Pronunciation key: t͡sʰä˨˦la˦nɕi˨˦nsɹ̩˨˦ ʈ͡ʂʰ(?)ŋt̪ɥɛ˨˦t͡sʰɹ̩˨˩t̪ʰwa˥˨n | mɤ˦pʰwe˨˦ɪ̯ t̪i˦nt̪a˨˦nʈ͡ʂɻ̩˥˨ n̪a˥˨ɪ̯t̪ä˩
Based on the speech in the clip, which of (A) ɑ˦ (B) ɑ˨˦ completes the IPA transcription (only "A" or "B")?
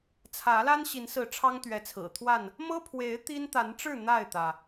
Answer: A